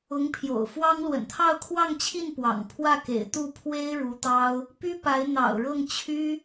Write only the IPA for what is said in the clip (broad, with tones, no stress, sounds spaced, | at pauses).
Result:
ʊ˧˥ ŋ pʰ j o̰˨˩ ʊ̯ f w ɑ˥ ŋ l w ə̰˨˩ n t̪ʰ ɑ˥˧ ʊ̯ kʰ w ɑ˥˧ ŋ t͡ɕʰ i˥˩ n p w ɑ̰˨˩ ŋ pʰ w ä˥˩ k ḛ˨˩ ɪ̯ t̪ u˥˩ pʰ w e˥ ɪ̯ ɻ u˧˥ t̪ ɑ˥ ʊ̯ | p y˥ p a˧˥ ɪ̯ n̪ ɑ̰˨˩ ʊ̯ ɻ ɤ˥˩ ŋ t͡ɕʰ y˥